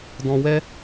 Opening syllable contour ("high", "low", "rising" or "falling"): low